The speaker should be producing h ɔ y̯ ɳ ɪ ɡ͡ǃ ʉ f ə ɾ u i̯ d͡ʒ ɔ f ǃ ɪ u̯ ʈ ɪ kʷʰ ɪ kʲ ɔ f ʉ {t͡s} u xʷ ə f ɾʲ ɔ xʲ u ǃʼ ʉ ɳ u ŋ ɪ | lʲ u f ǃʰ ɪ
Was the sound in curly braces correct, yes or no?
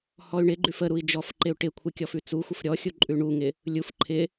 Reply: yes